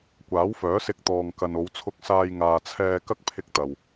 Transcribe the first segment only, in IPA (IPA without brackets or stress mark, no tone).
kʷ